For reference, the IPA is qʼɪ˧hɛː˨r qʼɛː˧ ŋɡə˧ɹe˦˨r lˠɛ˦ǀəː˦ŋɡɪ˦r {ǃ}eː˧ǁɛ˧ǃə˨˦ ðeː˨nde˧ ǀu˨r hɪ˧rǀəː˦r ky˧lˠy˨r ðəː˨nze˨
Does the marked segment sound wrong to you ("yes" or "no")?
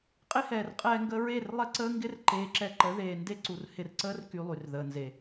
no